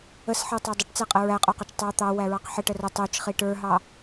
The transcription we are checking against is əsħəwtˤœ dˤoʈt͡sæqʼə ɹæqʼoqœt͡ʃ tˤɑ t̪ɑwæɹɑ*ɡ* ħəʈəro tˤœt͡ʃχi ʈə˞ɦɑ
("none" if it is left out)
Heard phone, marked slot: q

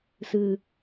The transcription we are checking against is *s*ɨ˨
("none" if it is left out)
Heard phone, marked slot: s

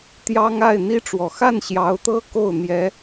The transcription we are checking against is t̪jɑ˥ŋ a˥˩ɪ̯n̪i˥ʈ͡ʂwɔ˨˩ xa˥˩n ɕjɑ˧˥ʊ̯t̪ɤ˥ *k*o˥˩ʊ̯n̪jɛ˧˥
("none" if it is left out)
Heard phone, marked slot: k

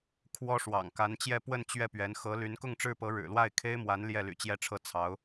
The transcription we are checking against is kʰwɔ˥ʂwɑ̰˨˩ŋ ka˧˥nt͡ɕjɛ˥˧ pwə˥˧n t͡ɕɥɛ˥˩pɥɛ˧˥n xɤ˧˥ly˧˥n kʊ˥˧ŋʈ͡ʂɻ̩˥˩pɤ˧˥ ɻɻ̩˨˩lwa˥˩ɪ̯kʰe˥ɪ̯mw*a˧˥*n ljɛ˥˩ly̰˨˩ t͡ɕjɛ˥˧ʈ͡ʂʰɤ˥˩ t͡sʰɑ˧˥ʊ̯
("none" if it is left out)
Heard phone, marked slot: a˧˥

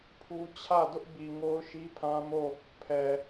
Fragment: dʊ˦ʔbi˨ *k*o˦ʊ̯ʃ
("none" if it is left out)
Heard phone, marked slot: ŋ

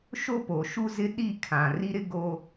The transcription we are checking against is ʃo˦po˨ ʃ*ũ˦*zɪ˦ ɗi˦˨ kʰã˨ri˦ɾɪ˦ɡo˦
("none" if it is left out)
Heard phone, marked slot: u˦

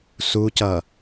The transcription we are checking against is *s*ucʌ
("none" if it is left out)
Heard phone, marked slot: s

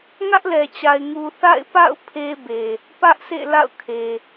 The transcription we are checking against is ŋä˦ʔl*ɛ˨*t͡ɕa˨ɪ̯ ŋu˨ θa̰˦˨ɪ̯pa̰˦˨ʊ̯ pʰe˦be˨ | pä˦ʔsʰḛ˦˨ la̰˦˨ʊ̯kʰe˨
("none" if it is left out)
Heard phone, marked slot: ɛ˨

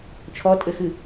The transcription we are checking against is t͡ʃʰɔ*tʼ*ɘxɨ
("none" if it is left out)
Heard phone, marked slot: tʼ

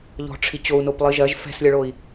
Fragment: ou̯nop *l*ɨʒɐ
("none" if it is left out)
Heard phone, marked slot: lˠ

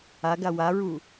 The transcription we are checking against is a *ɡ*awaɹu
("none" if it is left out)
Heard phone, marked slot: ɡ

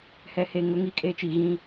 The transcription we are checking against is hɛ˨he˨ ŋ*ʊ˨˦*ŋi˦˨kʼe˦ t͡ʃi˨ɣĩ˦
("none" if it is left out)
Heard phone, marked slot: ʊ˨˦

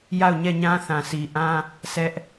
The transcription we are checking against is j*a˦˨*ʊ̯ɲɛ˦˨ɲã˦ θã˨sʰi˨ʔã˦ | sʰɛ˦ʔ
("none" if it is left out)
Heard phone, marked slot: a˦˨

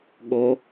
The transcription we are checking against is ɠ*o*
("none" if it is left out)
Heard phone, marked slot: o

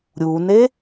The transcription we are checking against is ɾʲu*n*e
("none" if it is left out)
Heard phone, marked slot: n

